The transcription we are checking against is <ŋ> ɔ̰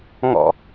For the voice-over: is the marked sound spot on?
yes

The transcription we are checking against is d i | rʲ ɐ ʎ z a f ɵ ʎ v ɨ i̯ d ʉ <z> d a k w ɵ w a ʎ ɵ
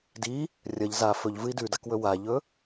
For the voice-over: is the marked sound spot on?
no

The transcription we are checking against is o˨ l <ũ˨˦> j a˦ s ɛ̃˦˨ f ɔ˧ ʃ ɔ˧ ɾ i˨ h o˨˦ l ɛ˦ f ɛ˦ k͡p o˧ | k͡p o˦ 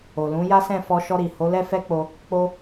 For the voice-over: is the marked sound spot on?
yes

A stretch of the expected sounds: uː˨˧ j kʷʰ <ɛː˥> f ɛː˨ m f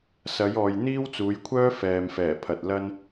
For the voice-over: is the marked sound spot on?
no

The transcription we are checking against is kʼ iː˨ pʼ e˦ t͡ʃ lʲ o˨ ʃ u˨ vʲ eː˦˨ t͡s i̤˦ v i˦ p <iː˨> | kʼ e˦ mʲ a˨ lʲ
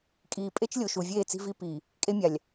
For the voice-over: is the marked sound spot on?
yes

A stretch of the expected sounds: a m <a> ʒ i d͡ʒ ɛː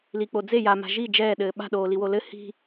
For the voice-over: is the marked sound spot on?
no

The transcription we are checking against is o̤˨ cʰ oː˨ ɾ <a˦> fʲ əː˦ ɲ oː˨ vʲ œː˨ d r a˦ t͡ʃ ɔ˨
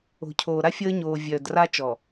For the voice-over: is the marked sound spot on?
yes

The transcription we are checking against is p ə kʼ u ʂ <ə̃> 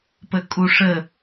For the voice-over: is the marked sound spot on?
no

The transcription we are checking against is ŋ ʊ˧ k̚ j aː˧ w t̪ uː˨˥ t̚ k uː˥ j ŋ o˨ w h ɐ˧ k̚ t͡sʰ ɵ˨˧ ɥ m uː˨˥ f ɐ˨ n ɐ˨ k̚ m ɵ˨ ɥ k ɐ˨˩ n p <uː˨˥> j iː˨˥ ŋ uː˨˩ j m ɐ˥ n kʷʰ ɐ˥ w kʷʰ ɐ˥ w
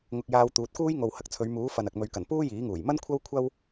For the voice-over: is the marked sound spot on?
no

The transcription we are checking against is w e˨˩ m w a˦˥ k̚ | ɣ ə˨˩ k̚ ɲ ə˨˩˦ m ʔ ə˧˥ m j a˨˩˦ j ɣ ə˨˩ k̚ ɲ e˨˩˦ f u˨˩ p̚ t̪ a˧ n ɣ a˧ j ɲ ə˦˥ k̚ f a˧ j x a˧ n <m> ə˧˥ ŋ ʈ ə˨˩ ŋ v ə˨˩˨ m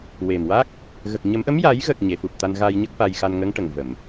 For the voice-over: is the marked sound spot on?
no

